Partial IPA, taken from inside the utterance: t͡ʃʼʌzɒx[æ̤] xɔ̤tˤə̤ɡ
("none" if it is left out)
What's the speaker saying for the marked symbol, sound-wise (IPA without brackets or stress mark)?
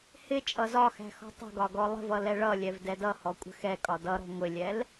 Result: æ̤